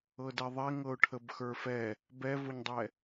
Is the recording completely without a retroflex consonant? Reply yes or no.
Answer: no